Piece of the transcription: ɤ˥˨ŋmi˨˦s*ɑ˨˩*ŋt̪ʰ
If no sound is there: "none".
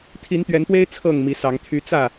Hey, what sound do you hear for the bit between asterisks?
ɑ˨˦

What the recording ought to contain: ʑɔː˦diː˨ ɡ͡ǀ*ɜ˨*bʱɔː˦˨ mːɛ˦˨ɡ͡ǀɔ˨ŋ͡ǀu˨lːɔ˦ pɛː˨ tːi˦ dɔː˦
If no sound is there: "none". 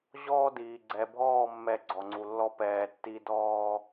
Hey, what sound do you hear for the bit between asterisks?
ɛ˨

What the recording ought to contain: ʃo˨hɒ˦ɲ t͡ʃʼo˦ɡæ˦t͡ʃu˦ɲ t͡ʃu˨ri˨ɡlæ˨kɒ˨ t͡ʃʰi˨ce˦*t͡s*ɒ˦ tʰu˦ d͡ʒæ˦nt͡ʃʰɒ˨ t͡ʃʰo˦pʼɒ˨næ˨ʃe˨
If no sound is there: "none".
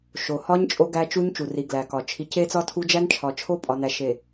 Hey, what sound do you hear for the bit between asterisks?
t͡s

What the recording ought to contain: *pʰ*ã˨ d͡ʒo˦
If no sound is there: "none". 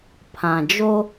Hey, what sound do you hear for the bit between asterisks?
pʰ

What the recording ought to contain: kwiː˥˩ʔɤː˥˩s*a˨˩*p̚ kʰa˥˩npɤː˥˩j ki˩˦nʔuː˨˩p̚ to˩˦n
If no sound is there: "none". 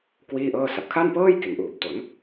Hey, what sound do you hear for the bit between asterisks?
a˨˩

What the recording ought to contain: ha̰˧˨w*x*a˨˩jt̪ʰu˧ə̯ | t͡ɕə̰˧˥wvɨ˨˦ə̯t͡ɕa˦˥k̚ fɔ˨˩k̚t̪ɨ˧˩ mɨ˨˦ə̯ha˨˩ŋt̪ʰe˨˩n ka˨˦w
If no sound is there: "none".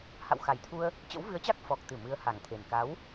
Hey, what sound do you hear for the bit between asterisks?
x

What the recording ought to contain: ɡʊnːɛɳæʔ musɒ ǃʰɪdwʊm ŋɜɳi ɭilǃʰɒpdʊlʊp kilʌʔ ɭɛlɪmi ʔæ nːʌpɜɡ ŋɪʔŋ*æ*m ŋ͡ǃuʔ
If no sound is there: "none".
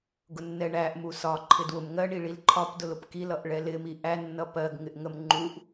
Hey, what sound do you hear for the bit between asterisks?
ə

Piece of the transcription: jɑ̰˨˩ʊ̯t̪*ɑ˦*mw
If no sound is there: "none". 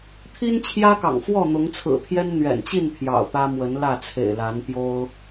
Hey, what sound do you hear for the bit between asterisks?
ä˦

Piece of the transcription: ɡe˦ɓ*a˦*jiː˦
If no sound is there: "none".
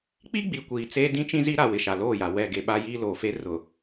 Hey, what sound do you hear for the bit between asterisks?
a˦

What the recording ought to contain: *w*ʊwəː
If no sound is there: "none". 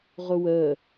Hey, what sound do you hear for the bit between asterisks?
ʁ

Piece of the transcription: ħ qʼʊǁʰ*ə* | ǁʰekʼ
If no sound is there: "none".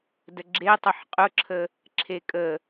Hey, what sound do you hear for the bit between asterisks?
ə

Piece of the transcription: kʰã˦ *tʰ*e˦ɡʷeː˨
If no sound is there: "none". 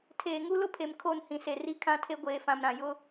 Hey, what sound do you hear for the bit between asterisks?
tʰ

